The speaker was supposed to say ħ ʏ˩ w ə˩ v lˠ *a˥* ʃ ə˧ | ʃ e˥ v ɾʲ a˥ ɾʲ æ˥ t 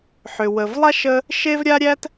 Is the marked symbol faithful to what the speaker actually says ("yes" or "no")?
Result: yes